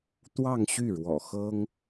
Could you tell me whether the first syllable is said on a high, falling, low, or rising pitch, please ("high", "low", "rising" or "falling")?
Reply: falling